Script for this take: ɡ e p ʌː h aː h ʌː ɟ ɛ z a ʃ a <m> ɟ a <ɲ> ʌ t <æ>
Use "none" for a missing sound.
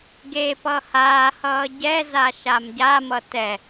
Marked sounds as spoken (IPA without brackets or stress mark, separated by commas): m, m, ɛ